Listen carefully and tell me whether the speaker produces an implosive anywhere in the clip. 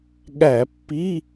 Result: yes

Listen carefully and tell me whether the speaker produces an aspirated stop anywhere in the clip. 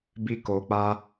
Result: no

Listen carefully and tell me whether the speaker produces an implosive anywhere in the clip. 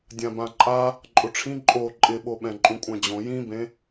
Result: yes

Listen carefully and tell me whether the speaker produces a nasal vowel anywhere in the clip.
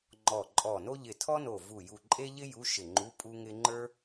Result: no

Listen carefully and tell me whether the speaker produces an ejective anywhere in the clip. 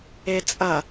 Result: yes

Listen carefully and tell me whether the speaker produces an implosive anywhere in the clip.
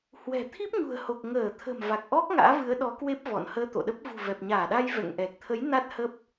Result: yes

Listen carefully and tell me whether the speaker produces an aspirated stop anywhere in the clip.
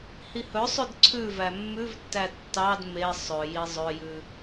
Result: yes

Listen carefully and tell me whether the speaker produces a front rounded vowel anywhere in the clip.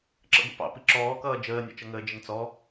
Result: no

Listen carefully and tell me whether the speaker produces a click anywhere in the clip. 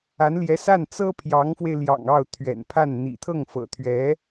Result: no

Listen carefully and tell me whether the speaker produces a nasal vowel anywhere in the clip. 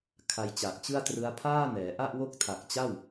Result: no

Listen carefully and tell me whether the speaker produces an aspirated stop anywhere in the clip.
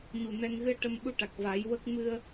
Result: no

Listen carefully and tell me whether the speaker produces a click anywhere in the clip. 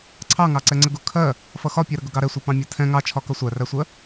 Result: yes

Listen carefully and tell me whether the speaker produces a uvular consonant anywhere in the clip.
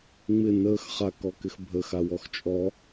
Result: yes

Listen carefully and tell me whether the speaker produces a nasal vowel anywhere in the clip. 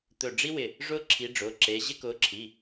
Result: no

